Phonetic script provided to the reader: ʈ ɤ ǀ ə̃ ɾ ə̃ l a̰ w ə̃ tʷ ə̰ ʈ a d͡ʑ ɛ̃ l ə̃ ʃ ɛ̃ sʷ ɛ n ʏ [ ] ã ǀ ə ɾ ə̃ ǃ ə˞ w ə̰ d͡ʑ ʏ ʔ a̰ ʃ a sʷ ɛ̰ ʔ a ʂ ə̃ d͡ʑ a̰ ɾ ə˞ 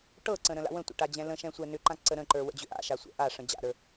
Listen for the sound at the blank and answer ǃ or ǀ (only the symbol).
ǃ